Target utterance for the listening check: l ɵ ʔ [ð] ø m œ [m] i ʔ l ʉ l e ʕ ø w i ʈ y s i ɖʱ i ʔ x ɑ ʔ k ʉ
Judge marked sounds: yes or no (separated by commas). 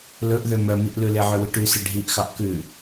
yes, yes